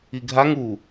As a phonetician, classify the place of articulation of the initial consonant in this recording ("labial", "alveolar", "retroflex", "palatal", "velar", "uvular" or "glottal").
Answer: velar